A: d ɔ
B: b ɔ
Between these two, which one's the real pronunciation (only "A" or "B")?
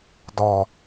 A